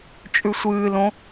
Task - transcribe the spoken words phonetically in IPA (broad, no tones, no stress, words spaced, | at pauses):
t͡ʃʼʉsʷɨːlõ